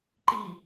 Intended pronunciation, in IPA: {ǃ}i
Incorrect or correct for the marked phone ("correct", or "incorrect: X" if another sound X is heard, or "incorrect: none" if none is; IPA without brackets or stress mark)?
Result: correct